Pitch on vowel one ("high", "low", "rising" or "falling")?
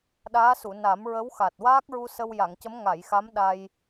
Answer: rising